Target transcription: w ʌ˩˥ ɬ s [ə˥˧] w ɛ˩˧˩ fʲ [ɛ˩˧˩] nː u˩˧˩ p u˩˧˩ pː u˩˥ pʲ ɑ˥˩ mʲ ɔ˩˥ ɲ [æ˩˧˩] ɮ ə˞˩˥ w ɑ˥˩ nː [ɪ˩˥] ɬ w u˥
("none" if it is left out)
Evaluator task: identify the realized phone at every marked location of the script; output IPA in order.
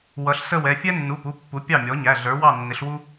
ə˥˧, ɛ˥, æ˩˧˩, ɪ˩˥

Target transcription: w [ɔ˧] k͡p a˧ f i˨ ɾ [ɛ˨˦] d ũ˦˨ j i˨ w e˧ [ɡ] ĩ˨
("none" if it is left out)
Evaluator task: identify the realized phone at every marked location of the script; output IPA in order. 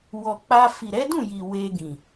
ɔ˨, ɛ˨˦, ɡ

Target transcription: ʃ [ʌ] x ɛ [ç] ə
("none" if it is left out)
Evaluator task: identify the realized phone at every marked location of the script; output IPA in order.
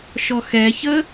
ɔ, ç

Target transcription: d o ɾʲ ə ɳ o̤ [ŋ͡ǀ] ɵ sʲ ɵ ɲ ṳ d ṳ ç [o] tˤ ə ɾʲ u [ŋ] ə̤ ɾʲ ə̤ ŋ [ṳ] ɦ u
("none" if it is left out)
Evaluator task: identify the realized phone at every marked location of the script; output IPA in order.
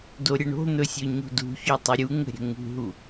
n̪, ɵ, ŋ, ṳ

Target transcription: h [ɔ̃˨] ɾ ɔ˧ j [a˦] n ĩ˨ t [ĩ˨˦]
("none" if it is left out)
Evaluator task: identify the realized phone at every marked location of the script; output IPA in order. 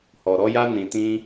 ɔ˨, a˧, ĩ˧

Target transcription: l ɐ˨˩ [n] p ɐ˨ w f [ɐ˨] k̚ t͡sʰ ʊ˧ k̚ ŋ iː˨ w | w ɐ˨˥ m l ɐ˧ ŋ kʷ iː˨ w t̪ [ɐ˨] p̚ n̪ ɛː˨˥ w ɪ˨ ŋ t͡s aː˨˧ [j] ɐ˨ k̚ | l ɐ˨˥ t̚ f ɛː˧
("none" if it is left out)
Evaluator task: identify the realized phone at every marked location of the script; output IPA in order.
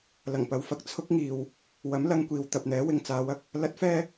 ŋ, ɐ˨, ɐ˨, w

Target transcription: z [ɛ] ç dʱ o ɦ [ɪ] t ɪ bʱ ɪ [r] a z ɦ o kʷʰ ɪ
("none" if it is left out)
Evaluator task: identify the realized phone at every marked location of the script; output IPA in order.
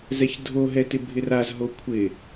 ɛ, ɛ, r

